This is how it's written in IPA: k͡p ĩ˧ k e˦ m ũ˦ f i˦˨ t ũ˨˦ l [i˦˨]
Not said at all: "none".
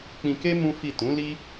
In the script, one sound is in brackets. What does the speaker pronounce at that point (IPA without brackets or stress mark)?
i˦